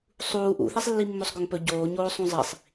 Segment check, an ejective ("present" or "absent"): absent